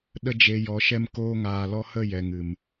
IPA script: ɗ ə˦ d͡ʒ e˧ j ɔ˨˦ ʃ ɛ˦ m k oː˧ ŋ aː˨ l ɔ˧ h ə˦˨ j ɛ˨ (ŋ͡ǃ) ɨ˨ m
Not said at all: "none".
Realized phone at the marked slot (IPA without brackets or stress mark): ŋ